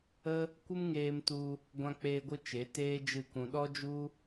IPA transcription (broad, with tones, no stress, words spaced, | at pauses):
ə˦ | kʷɨ˦mŋeː˧mtu˧ | ɡʷã˧k͡peː˧ɡʷɨ˧ t͡ʃe˨˦teː˦d͡ʒɨ˦˨kũ˧ ɗɔ˦d͡ʒu˦